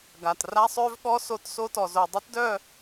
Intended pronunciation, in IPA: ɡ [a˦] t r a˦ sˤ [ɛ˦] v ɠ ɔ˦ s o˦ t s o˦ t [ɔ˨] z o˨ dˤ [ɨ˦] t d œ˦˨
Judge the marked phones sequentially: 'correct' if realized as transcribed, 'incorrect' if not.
incorrect: a˨, incorrect: ø˦, correct, correct

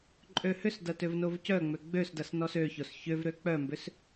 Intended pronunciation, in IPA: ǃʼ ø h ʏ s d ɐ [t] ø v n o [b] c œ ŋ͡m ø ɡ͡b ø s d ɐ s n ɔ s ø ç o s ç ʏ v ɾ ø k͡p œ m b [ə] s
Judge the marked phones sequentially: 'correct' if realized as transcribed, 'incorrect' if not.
correct, incorrect: v, incorrect: ʏ

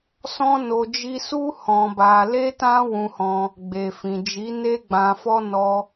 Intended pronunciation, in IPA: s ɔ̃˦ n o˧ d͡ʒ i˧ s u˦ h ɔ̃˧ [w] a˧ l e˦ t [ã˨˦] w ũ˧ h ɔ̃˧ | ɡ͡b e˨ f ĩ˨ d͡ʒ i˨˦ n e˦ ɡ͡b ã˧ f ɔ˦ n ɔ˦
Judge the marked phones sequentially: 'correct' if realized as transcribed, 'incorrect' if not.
incorrect: b, incorrect: ã˦

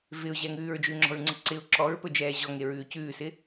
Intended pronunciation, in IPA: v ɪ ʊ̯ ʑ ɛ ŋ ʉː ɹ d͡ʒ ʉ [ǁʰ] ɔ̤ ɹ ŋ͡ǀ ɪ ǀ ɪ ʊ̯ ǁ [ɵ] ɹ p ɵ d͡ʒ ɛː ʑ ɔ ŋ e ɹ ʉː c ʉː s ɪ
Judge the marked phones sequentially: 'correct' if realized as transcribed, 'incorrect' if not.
incorrect: ŋ͡ǁ, incorrect: ɔ

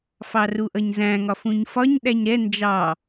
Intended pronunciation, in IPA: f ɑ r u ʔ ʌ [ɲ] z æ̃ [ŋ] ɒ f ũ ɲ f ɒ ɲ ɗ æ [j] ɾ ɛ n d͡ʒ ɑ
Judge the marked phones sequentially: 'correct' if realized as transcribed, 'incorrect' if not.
correct, correct, incorrect: ɲ

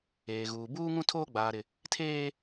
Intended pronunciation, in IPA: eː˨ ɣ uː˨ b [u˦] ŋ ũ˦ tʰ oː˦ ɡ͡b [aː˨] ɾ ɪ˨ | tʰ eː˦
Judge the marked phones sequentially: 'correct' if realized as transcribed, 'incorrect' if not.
incorrect: uː˦, correct

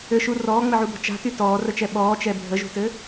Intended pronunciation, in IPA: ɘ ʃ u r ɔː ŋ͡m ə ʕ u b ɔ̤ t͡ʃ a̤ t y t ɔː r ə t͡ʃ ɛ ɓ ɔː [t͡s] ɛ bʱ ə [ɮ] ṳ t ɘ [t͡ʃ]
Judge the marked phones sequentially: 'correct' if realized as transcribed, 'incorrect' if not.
incorrect: t͡ʃ, incorrect: ʒ, incorrect: none

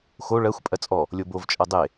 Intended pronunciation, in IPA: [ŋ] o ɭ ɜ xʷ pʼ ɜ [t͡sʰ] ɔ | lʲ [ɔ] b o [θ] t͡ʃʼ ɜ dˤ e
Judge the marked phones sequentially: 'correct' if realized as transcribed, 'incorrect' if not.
incorrect: x, incorrect: t͡sʼ, incorrect: o, incorrect: v

